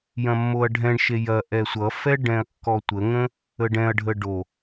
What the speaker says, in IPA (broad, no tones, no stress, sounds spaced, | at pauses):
j ɐ̃ mː o ɐ̯ ɖʱ ɛ̃ ɳ ʃ e j ɐ ʔ ɛ sʷ ʌ f ɛ ɖ ɛ̃ ɐ̯ kː ɔ tʷ ə ŋ ə̃ | ə ɖ ɛ̃ ɐ̯ ɖʱ ə ɖ o